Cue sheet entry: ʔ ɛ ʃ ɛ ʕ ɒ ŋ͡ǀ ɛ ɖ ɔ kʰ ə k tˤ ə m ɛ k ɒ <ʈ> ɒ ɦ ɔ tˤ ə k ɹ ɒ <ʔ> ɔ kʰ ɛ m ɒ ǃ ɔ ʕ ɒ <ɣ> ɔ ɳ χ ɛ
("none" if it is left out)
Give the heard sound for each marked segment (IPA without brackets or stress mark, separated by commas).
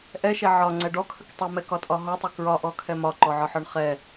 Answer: tʼ, ʔ, ħ